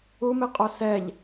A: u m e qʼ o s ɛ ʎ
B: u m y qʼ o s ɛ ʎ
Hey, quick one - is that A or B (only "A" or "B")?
A